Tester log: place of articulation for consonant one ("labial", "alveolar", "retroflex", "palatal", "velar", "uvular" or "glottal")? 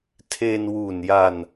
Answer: alveolar